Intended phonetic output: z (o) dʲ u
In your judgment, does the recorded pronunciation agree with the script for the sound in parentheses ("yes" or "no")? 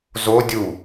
yes